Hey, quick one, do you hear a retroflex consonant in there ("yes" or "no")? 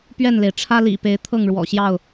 yes